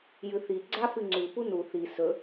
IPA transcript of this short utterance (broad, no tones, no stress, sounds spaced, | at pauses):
j ɨ θ i ɡ͡ǀ a f ɨ ŋ͡ǀ ʉ p u n u θ i s ɵ